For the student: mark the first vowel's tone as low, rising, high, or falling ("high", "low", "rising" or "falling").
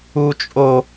high